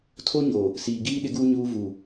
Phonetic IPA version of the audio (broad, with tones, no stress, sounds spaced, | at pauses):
tʰ o˦ ɲ o˨ | s iː˨ ɡ iː˦ ɗ ɪ˦ ɡ uː˦ ɲ uː˦ v u˨